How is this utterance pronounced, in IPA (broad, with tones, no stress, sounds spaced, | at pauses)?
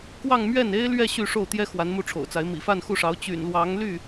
k w ɑ˥˧ ŋ m ɥ ɛ˥˩ n e˥ ɪ̯ l ɥ ɛ˥˧ ɕ y˥˧ ʂ o˥˩ ʊ̯ t̪ j ɛ˥ x w a˧˥ n m u˥˩ ʈ͡ʂʰ o̰˨˩ ʊ̯ t͡s a˧˥ ɪ̯ m ḭ˨˩ f a˥˧ n x u˥˩ ʂ ɑ˧˥ ʊ̯ t͡ɕ y̰˨˩ n l w ɑ˧˥ ŋ l y˥˩